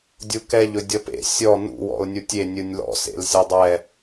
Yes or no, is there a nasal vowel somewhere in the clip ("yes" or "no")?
no